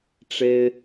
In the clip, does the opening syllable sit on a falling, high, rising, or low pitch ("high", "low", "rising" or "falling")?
high